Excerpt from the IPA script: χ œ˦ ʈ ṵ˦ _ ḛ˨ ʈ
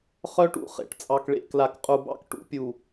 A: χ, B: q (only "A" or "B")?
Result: A